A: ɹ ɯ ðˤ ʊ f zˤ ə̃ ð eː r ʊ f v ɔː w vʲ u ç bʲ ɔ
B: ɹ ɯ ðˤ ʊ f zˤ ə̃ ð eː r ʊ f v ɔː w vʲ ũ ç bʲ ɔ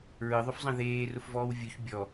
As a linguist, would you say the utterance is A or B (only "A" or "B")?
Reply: A